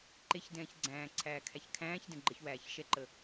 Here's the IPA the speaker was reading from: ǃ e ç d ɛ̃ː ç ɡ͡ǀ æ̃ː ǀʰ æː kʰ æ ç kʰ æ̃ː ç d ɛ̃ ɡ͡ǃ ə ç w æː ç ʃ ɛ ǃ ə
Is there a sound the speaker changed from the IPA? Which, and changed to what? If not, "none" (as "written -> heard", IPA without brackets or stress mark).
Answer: none